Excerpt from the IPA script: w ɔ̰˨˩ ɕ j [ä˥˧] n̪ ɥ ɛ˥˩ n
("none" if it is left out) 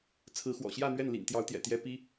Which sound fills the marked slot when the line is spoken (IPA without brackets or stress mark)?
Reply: ä˥˧